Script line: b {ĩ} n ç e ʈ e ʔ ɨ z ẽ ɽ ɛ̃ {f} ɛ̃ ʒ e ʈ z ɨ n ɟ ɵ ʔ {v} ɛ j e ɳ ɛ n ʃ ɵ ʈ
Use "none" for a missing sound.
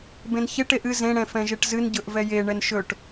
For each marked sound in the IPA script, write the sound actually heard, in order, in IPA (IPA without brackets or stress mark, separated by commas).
ẽ, f, v